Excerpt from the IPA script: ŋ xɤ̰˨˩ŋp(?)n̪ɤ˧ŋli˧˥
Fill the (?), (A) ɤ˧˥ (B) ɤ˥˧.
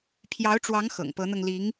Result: A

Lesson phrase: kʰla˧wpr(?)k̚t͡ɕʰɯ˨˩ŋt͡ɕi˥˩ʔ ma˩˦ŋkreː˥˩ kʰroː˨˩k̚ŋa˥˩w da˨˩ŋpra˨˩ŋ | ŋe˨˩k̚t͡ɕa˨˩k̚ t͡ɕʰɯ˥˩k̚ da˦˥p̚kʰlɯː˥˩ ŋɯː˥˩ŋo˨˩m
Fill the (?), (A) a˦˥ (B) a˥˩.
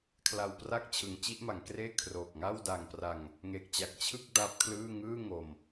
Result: B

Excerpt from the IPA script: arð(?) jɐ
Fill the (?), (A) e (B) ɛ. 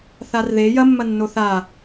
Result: A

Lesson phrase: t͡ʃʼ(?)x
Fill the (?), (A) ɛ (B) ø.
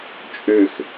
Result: B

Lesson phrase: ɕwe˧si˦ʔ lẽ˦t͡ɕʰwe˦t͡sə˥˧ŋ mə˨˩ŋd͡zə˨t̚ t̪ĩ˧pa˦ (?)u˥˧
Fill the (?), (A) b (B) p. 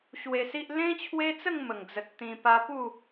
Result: B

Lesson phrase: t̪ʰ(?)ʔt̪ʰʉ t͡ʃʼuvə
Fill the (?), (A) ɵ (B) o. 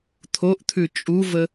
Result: B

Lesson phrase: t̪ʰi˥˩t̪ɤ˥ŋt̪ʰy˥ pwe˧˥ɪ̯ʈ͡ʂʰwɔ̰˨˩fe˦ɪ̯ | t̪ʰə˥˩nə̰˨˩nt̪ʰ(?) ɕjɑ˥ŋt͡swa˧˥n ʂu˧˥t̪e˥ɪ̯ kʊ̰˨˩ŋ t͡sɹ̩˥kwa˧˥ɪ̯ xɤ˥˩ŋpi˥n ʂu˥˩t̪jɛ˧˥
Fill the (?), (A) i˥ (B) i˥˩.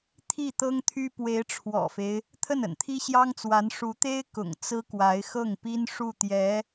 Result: A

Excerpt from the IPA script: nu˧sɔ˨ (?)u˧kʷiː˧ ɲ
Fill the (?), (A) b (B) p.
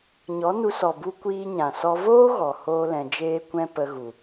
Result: A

